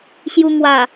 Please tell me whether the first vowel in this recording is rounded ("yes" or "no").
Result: yes